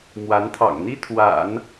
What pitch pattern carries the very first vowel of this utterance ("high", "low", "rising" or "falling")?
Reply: rising